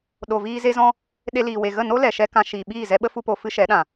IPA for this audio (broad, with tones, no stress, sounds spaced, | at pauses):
ɗ o˨ v iː˧ z e˧ z ɔ̃˧ | ɗ e˧ l iː˨ w e˨ ɣ ə˦˨ n o˦ l ɛ˨ ʃ ɛ˧ k ã˧ ʃ iː˨ ɓ iː˦˨ z ɛ˧ ɓ ə˦ f u˦ p o˧ f ɨ˦ ʃ ɛ˨˦ ɗ ã˨